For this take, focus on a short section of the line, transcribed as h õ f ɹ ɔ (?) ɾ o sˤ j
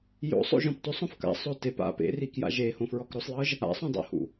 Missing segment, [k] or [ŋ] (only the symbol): k